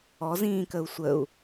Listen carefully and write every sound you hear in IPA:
ɔzĩːkəu̯ sʷəu̯

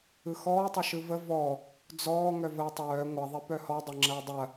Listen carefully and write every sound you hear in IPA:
ɯxɔːtˤʌ ʃɯvə vɔ | d͡zɔː ŋœvəːtˤœː ŋʷɐðˤi pœhɔ dˤɐŋ͡ǁɐːdˤɐ

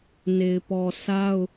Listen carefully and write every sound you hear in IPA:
ne˨ɪ̯pɔ˨sa˦ʊ̯

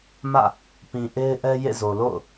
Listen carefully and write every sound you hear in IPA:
mä̰˦˨ | pĩ˨ʔe˦ɪ̯ʔɛ˦ jḛ˦˨zo˨ lo̰˦˨ʊ̯

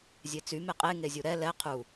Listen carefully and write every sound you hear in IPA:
zʲet͡sy meqʼe ŋezʲuɾɛ lɛ qʰu

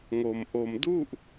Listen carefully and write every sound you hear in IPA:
ŋo˧m ʔo˧mdu˥˩ʔ

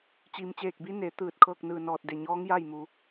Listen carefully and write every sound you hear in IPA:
t͡ɕi˩mt͡ɕeː˧˩k̚bi˧˥ ne˩˧ t̪ɯː˧˩t̚kʰɤː˥˨k̚nɯː˧˩nɔː˧˩t̚ de˩ɲɔː˧˥ŋja˥˨j mu˧

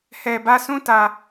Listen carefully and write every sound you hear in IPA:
hɛ˨bä˦˨ sũ˦˨tä˨

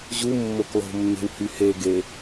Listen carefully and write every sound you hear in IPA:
ʑu mːoklˠo̤mːe̤w hyheɡe

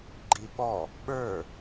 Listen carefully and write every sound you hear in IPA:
ɡ͡ǃiɓɔ | ɓə˞

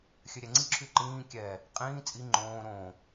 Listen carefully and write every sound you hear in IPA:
xʲøɾʲɛŋ͡ǀiǁʰy ǃĩː kʲɛ | qʼĩː t͡sʼi ŋ͡ǃõː ɾõ

